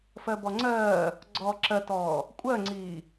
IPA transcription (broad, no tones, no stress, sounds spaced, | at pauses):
f ɜ b ɔ ŋ͡ǀ ɜː | ɡ͡ǀ ɔː ǁ ɜ t ɔː | kʷʼ ɜ ŋ͡ǀ iː